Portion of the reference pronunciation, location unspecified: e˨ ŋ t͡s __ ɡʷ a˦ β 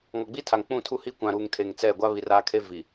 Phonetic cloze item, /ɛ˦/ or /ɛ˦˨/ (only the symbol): ɛ˦˨